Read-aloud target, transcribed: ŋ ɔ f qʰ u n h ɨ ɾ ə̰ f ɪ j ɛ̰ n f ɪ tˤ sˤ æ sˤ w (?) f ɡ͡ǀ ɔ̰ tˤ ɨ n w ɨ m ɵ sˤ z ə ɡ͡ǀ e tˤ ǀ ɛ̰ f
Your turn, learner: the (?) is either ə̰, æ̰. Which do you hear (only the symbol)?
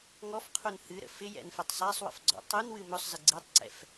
ə̰